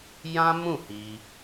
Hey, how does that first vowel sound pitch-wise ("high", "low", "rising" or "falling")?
high